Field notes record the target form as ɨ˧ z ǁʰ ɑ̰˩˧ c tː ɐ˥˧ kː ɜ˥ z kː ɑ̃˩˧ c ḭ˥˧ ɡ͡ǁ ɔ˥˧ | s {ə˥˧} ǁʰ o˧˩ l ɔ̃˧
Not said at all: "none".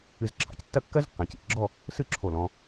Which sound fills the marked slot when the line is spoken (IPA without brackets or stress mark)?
ɨ˥˧